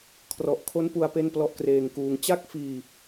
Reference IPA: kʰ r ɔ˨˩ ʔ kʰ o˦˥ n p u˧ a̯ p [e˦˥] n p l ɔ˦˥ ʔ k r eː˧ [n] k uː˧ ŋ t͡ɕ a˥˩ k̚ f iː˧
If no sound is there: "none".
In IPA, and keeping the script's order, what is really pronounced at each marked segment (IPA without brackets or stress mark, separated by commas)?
e˥˩, ŋ